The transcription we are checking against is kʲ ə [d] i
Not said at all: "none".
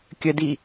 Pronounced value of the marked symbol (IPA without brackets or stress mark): d